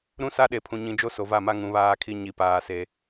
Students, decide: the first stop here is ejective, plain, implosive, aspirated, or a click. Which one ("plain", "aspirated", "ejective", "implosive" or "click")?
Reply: implosive